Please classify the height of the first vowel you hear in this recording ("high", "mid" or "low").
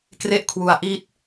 mid